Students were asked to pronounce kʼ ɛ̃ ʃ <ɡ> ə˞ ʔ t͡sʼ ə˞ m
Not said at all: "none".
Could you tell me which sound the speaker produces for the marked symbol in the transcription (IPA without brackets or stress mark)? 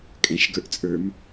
ɡ